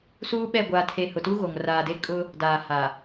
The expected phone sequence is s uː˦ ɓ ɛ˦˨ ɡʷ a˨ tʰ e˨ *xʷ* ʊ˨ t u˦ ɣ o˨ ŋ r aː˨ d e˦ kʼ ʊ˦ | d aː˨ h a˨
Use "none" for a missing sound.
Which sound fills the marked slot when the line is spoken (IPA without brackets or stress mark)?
h